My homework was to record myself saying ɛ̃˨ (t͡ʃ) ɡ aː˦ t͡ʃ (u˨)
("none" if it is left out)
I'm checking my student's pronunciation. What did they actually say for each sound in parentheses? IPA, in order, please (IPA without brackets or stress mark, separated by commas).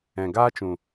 none, ũ˨